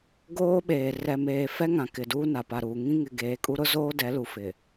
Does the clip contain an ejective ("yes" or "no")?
yes